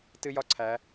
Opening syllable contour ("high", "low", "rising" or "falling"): high